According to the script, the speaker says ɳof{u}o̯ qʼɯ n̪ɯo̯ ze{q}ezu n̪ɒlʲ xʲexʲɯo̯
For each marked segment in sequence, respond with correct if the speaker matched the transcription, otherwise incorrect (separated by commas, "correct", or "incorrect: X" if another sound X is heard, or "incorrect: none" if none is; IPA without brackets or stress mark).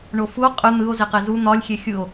correct, correct